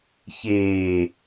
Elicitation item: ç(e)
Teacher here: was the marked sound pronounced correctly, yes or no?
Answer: no